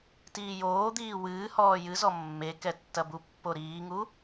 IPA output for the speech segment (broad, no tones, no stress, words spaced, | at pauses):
tiːjoːd̪iː wɨː hɔːjɨzɔ mːekɛ tːɐbupːo ɾiːŋu